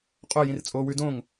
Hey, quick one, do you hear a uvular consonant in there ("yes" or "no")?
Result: yes